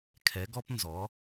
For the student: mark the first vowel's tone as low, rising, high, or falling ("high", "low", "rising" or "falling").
rising